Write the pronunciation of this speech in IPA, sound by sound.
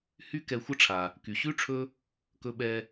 h y˦ k ɛ˨ xʷ ə˥ ʈ͡ʂʰ a˩ | k y˩ ɕ ʉ˥ ʈ͡ʂʰ ɵ˦ | k ɵ˨ ɓ ɛ˨

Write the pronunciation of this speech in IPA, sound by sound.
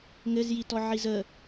ŋ ɘ z j i t ɔ ʕ i z ə

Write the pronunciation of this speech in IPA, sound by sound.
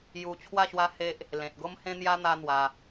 j u˧ t͡ɕʰ w a˥˧ ɕ w a˦ h e˦ ʔ | l ẽ˨ t̚ ɡ o˦ m h ẽ˦ n̪ j a˦ n̪ a˦ n̪ w a˧

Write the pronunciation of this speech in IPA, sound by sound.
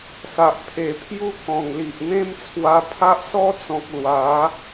s a˨ ʔ pʰ e˨˩ pʰ j u˦ k ɔ̃˨˩ ŋ l i˨ ʔ n̪ ẽ˦ m t͡sʰ w a˧ pʰ a˦ ʔ s ɔ˦ t͡s ɔ̃˨ k̚ l w a˨˦

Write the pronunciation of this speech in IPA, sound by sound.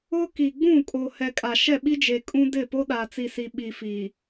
ʊ˦ k i˨ ɡ͡b ũ˦˨ kʼ o˨ h ɛ˨ kʼ a˨ ʃ ɛ˦˨ ɓ i˦ d͡ʒ e˨ kʼ ũ˦ d ɪ˦˨ p o˦ ɗ a˨ t͡s i˨ s i˨ ɓ i˨ f iː˨

